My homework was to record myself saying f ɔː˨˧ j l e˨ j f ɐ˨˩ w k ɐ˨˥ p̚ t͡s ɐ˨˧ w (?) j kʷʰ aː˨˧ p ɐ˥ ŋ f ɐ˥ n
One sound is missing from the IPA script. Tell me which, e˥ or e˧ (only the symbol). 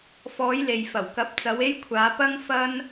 e˧